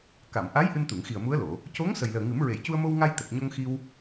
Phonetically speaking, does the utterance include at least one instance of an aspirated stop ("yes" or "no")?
no